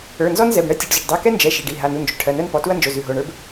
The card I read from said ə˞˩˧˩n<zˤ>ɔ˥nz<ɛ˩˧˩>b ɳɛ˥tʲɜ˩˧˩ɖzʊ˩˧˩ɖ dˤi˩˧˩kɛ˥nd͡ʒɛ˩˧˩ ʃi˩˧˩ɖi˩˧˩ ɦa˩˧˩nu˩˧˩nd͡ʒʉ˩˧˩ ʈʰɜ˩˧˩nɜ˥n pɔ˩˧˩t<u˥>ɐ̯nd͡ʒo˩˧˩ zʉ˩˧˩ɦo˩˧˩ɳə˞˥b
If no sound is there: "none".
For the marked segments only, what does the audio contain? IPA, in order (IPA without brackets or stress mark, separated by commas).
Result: z, ɛ˩˧˩, u˥